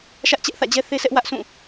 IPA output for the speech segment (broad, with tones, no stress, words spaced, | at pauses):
ʃä˦ʔt͡ɕɛ˦ʔθä̰˦˨d͡ʑɛ˦ θe˦sɛ˦ʔ wä˦ʔsũ˦˨